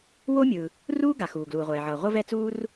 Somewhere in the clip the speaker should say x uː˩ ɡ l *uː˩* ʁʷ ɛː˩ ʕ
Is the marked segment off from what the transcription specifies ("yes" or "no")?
no